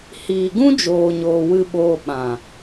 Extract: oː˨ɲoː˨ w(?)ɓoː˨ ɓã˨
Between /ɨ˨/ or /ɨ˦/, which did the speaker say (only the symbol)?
ɨ˨